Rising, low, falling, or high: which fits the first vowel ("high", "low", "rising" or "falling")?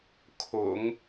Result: low